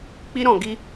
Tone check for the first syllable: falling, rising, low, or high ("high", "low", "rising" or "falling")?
high